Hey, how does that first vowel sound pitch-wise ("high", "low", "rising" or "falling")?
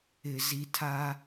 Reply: low